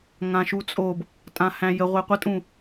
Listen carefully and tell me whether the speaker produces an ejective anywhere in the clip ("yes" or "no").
yes